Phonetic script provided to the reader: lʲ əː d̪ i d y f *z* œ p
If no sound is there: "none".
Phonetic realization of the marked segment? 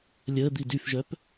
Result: ʒ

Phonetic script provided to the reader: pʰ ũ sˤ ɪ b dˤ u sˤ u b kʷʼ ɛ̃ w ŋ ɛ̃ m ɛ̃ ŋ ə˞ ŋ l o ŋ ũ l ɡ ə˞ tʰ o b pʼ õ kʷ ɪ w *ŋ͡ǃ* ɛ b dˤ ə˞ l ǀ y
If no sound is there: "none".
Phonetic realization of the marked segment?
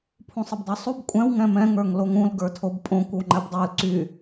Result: ŋ͡ǃ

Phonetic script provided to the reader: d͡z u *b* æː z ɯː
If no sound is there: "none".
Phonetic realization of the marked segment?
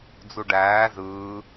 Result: ɖ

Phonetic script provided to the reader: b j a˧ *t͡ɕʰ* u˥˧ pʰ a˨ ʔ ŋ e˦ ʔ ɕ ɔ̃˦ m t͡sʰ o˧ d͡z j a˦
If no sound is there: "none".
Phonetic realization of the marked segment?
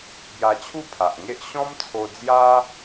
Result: t͡ɕʰ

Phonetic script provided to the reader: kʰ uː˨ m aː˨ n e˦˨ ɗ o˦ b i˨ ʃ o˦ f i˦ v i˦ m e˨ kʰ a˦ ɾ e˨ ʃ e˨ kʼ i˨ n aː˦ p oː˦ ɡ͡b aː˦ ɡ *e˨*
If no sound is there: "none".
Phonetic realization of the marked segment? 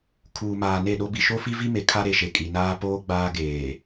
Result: eː˨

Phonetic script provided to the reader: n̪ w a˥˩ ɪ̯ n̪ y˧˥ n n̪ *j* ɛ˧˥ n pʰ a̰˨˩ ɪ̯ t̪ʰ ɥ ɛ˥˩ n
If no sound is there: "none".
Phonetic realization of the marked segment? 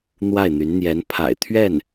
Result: j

